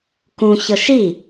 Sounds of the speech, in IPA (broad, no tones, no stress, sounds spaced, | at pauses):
k ũ ç ɤ ʃ i